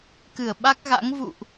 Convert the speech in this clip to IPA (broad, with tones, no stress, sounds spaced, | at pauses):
k ɨ˧˩ ə̯ ɓ a˦˥ k̚ ɣ a̰˧˥ ŋ v ṵ˧˨ ʔ